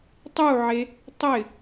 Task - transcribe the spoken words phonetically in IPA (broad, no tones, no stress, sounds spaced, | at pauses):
tˤ u ʕ e | tˤ ɪ